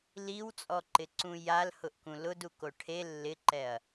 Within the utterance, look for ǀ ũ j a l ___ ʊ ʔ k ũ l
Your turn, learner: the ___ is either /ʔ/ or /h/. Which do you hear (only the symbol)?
h